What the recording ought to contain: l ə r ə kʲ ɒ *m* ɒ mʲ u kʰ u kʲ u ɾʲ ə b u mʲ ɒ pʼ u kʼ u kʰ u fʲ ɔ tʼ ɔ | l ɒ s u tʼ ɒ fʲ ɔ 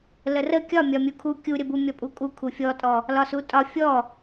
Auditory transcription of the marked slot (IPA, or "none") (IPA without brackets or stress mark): mʲ